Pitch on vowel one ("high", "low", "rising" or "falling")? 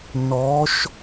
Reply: rising